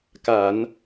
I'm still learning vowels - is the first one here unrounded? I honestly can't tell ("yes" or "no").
yes